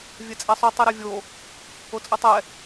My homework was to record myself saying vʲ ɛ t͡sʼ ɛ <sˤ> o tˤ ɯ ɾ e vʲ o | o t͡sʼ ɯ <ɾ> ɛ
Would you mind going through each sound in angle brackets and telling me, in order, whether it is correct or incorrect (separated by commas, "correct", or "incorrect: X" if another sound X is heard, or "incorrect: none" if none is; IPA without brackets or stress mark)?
correct, incorrect: tˤ